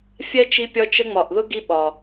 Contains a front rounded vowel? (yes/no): no